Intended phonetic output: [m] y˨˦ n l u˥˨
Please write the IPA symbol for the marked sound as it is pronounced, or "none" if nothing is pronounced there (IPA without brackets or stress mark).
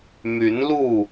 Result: m